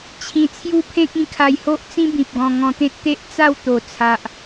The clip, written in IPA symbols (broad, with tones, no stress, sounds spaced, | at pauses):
t͡ɕʰ ĩ˨˩ t͡sʰ j u˦ pʰ ẽ˦ k̚ ĩ˧ kʰ a˧ j h o˦ ʔ t͡s ĩ˦ b ĩ˨ p̚ ɡ ɔ̃˧ ŋ ɔ̃˧ t̪ ẽ˦ t̚ t̪ e˦ ʔ t͡s a˥˧ w t̪ o˨˩ t͡sʰ a˨ ʔ